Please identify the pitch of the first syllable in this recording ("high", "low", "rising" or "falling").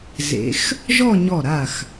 rising